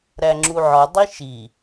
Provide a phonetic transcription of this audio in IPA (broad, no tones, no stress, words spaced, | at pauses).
ɾæŋ͡ǁuʕɒ dˤiʃi